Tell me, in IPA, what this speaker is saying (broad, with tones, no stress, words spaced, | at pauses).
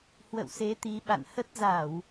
hwə̰˧˨wse˨˦t̪i˨˦ ɓa̰˧˨nhə˦˥t̚ za˧˩˨w